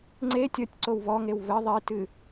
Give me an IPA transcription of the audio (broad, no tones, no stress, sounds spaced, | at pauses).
ŋ͡ǀ e tʲ ɔ tʲ ǀ o w v ɔ ŋ e w v ɘ ðˤ i t ɨ